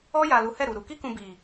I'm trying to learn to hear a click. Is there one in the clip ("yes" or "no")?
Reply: no